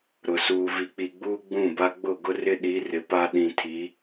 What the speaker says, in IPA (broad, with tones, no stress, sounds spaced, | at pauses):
ɾ ʊ˨ s uː˨ v i˨ k͡p i˨ ɡ͡b uː˦ ɡ͡b ũ˦˨ b a˦ ɡ͡b ʊ˦˨ ɡ ʊ˦ r ɪ˦ ɗ i˨˦ r ɪ˨ p a˦ ɗ ĩ˨ tʰ i˨˦